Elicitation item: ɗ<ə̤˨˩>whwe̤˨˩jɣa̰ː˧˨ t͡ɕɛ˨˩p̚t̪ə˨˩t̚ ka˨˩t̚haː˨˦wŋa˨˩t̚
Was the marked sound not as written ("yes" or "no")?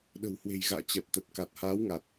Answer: no